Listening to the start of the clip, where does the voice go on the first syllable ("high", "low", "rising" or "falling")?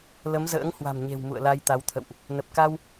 rising